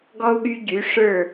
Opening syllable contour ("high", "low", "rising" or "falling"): high